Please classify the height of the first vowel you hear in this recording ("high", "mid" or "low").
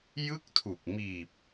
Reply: high